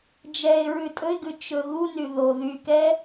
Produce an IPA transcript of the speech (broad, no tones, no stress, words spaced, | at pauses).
d͡ʒɛɪ̯ɹʉ tʼɵɪ̯ɡʉ t͡ʃɵɣuny ðo ðykɛ